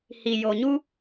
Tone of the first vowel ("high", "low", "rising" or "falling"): low